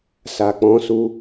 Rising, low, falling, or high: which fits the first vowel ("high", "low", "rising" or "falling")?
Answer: low